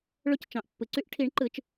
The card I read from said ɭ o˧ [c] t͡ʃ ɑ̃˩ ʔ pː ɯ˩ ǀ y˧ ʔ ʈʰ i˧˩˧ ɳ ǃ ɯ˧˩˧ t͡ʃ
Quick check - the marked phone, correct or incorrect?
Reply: correct